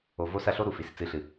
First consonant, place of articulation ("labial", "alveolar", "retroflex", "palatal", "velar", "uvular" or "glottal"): labial